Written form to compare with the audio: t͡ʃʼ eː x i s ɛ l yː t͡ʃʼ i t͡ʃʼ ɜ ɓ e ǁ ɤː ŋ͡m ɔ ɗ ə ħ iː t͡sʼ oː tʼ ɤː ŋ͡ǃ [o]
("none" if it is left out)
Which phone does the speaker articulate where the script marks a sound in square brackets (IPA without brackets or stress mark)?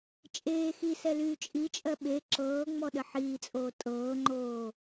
oː